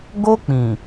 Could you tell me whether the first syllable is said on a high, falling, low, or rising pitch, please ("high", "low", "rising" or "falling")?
high